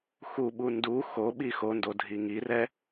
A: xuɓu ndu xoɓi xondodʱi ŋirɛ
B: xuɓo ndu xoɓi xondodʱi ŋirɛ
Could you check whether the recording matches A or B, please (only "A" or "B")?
A